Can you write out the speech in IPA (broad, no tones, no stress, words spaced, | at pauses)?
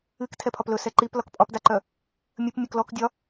ɨk tʰɛpʰɒplɵ sɛǃip lɒkpʼɒpdaǃœ | mʲɵp mʲɵklɔk dʲɒ